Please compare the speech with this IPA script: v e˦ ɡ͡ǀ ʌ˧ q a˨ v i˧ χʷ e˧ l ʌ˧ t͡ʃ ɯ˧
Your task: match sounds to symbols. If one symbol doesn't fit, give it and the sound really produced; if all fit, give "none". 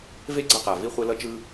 none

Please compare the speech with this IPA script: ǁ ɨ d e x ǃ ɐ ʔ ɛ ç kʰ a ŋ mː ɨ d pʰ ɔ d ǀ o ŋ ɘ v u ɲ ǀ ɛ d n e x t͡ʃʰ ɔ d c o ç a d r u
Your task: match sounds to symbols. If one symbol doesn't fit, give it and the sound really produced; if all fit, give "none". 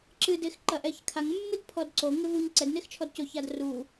none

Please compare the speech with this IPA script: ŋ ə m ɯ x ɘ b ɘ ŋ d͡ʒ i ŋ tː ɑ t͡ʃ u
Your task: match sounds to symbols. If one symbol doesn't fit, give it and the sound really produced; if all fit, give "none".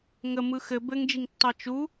none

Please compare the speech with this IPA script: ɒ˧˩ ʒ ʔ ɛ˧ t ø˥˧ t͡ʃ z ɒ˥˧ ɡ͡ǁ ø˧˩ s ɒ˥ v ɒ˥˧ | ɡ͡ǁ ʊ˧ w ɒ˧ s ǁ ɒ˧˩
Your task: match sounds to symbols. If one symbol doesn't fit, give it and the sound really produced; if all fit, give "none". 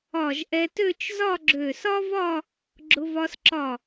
w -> v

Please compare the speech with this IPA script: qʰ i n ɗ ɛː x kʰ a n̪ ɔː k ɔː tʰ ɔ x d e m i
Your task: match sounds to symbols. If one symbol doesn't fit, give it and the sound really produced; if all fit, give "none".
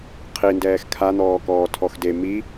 ɗ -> d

